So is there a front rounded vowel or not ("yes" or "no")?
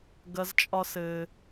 no